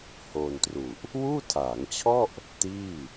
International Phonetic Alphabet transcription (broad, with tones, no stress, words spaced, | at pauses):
hoː˧ntru˨˩ʔ | wuː˥˩tʰaː˩˦ŋt͡ɕʰɔ˥˩ʔ | tiː˥˩